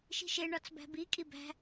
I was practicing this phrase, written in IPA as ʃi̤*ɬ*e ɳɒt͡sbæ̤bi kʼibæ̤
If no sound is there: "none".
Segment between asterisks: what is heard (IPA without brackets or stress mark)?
ʃ